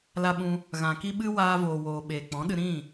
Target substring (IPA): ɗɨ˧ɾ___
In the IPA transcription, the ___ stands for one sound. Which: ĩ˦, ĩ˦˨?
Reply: ĩ˦˨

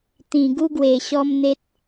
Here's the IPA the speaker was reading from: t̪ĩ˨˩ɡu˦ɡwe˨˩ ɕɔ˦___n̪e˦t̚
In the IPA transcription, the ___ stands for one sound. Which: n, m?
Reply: m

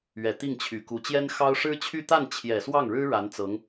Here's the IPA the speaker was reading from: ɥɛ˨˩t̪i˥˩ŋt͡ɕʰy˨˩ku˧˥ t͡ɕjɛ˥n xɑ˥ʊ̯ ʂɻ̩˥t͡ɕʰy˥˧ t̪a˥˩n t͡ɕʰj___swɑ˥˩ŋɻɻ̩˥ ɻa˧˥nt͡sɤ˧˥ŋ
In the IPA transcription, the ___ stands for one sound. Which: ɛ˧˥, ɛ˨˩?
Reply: ɛ˨˩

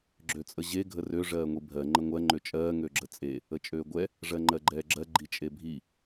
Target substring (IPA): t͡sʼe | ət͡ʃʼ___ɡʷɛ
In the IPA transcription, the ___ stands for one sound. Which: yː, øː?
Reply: øː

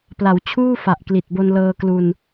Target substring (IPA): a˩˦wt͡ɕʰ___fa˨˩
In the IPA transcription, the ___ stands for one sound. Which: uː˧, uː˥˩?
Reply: uː˥˩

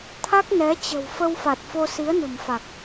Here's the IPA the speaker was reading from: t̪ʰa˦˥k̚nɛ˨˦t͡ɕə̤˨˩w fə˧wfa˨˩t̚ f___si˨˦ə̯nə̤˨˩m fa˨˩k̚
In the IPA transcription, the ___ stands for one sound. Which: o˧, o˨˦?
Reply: o˧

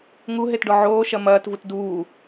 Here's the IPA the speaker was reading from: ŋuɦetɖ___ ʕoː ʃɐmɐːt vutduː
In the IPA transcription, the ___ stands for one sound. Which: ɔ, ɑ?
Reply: ɔ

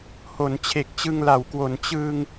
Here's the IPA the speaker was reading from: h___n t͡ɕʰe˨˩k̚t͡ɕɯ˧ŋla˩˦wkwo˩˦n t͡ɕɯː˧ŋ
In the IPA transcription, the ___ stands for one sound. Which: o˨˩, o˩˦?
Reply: o˩˦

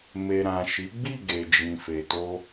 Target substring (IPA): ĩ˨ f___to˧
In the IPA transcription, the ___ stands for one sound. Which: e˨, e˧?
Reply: e˨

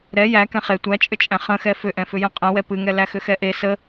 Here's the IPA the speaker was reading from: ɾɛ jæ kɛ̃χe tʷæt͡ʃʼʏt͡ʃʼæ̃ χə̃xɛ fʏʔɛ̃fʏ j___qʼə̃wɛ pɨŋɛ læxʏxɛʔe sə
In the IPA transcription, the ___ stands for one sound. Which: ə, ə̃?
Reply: ə̃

